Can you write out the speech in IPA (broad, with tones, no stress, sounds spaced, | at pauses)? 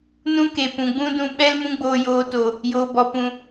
n ũ˦ k e˨ p ũ˨ ɡ͡b ũ˦ d ũ˧ ɓ ɛ˦ l m ũ˦ ɡ͡b oː˧ j oː˧ t o˨ | j oː˨ b ɔ˨ p ũ˨